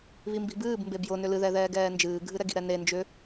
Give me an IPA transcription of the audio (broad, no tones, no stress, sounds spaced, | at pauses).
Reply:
β i m b i̤ b ɨː b m b e b j ʊ n ʏ l ɨ ð ɛ ð ɛː ɡ ɛː n d͡ʒ ɨː ɡʱ ɨ ɾ ɛ ɡ i̤ ɾ ɛ n e n d͡ʒ ʏ